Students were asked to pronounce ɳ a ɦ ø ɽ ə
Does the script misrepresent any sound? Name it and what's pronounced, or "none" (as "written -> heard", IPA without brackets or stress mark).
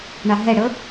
ø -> ɛ